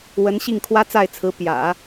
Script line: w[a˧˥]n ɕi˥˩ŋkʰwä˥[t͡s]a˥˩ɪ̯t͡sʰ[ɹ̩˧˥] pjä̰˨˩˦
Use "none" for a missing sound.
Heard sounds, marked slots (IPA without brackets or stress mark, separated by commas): ə˧˥, t͡s, ɹ̩˧˥